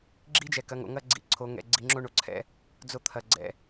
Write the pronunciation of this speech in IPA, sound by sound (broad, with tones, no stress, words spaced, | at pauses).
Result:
ɡ͡ǁi˦d͡ʒɛ˨ kɐ˨˦ŋo̰˨ ŋɐ˦ɡ͡ǀḭ˨ ǀʰo˨˦ŋɛ̰˨ ɡ͡ǀi˨ŋ͡ǁo˦ɳo˨ǀʰɛ̰˦ | d͡zo˦t̪ʰɐ˨ɡ͡ǀɛ̰˨